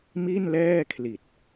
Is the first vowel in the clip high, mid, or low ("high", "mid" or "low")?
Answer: high